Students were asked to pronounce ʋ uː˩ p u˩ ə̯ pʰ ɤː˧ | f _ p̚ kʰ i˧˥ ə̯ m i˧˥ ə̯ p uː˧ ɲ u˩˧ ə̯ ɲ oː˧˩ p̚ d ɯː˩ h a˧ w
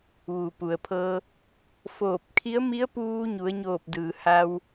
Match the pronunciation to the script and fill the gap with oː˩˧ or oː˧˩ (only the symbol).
oː˧˩